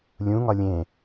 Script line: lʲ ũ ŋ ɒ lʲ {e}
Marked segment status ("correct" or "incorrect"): incorrect